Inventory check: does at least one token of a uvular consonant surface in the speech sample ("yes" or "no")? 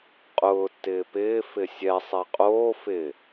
yes